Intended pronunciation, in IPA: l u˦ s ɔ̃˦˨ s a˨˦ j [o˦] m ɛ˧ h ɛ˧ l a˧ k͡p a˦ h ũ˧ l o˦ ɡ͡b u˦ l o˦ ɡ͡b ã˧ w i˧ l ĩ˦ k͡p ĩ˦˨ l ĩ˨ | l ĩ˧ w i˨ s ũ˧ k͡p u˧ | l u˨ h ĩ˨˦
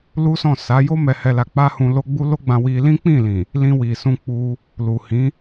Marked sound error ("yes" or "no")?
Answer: no